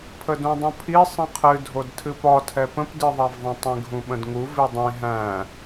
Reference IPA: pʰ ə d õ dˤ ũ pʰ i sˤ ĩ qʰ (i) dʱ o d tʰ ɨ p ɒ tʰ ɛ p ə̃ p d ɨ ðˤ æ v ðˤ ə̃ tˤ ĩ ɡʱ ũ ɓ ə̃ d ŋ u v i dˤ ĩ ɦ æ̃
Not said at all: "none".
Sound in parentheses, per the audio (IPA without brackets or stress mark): ɨ